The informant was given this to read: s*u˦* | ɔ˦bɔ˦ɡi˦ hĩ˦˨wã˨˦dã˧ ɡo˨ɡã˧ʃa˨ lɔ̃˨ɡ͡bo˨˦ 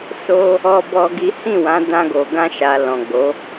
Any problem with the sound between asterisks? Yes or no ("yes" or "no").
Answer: yes